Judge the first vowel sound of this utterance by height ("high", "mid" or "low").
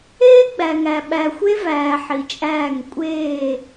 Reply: mid